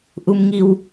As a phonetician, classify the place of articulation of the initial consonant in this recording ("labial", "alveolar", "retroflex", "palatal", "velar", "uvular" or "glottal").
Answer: glottal